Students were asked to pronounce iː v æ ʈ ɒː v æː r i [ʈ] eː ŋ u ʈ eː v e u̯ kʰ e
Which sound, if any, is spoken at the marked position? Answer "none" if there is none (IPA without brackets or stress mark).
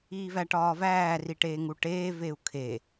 ʈ